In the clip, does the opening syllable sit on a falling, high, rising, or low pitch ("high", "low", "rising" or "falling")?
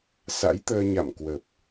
rising